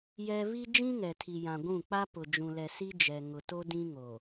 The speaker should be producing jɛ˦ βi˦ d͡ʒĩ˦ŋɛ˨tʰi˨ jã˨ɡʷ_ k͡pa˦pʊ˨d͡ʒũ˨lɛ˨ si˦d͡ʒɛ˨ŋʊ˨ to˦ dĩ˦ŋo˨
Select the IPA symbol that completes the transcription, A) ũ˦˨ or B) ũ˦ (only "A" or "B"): A